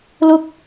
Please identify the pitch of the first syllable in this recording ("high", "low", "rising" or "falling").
high